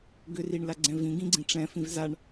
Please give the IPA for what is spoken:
ɡ ʏ r i ɳ l a ɡ͡ǀ ɛ̃ v ĩ ɡ ĩ ɡ͡ǀ ĩ ʈ͡ʂ ɛ̃ f ĩ v z a ɳ

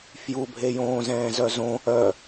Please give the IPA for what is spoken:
f j u bʱ e j õː z ɛ̃ː z œ z õ | œ

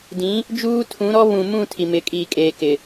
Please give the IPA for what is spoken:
d ĩ˨˦ | d͡ʒ uː˦ tʰ ũ˨˦ ɾ ɔ˦ β ũ˨ m ũ˦˨ tʰ i˨ m ɪ˨˦ kʼ iː˨ kʼ eː˨ k ɪ˨

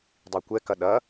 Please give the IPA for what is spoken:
dˤ i kʷ ɛ k ɐ ɗ ɐ

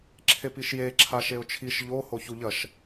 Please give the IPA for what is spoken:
ǁʰ e p i ʃ j e ǁʰ a ʃ e ʊ̯ t͡ʃʰ i ʃ ʎ o h o ç u ʎ ɐ ʃ

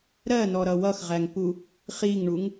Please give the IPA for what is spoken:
ɾ ɜ n ɔ ɾ ʌ w ʌ x ʁ æ ŋ p u | χ i ŋ ɳ u ŋ

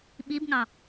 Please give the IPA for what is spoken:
ɓ i b ŋ ɑ

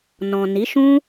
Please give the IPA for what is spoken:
n ɔ̃˨ n i˨˦ ʃ ũ˦

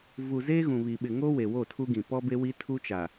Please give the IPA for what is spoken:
v u˨ z eː˦ ɣ ũ˨ β i˨ ɓ ɪ˨ ŋ o˦ w e˨ w o˦˨ tʰ u˦ ɡ ĩ˨ p ɔ˦ b e˦ w i˦ tʰ u˦ t͡ʃ a˨

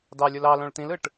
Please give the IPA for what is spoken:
d ɑ lʲ o l ɑ l õ ɭ t̪ ĩ l ɯ ʈ

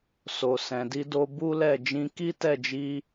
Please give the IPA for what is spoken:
s o˨ s ɛ̃˨ d i˧ d o˧ b u˦ l ɛ˦˨ d͡ʒ ĩ˧ k i˦ t ɛ˦˨ d͡ʒ i˧

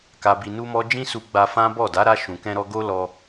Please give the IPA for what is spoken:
k a˧ b i˧ n u˦ m ɔ˦ d͡ʒ ĩ˦ s u˧ ɡ͡b a˧ f ã˦ b ɔ˦˨ d a˨˦ ɾ a˧ ʃ ũ˨ k ɛ̃˧ ɾ ɔ˧ ɡ o˦ l ɔ˧

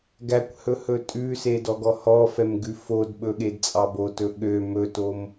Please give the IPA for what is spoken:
ɡ æ kʷ h ɵ h ɵ tʼ ʉ s e d ɔ ɡ ɔ h ɔ f ɛ m ɡ ʉ f o d ɓ ɵ ɠ e d t͡sʼ ɑ b o t ɵ ɠ ø m ɵ t o m

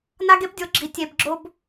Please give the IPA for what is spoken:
n a˦ ɡ e˦ p dʲ o˨˦ ɡ͡ǁ i˨ tʲ e˧ b ɡ͡ǁ o˦ b

